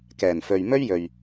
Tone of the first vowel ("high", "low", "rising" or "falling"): low